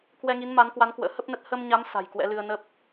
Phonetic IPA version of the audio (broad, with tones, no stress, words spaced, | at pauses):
kwɛ˧ŋi˨˦nma˨˦nkwa˨˦n kwə̰ː˧˥hə˦˥p̚nə˦˥t̚ hə˧mɲa˨˦m sa̤˨˩jkwɛ̰˧˥lɨ˧ə̯ nə˦˥p̚